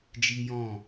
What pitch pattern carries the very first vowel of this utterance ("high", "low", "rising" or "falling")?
high